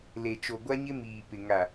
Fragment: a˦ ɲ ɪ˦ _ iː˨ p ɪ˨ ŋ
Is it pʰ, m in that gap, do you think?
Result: m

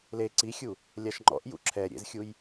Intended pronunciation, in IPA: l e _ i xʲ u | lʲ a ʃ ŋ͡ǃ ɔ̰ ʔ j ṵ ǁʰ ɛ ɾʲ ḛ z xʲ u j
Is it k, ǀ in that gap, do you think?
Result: ǀ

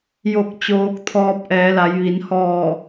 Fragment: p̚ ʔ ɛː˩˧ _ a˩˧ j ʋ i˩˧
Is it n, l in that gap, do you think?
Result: l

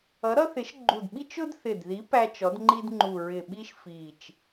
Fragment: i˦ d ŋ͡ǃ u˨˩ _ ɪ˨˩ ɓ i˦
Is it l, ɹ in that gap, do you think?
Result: ɹ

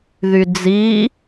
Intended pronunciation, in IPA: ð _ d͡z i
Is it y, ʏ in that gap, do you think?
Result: y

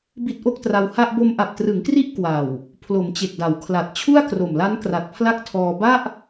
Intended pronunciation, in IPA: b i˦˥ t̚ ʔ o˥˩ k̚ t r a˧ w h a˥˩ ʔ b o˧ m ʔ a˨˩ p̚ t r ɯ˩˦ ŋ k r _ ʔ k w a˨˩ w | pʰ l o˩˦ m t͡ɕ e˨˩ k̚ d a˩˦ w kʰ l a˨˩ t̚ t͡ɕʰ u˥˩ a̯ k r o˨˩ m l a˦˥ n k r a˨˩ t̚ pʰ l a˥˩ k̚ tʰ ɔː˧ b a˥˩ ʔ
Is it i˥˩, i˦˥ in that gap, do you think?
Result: i˦˥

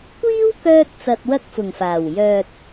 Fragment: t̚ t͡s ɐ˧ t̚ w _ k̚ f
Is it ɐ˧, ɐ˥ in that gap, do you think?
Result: ɐ˥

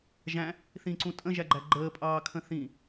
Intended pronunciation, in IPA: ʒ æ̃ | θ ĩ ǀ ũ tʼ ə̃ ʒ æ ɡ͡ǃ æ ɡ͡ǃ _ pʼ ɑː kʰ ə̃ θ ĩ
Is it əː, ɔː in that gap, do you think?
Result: əː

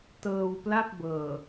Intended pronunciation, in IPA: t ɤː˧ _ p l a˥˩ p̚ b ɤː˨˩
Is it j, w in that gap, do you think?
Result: w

